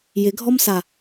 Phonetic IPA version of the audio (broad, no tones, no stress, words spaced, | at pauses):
jɪɡʱɔmsa